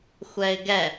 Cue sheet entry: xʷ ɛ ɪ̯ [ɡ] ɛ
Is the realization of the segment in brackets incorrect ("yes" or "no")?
no